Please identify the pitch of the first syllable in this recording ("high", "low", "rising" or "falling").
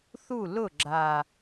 falling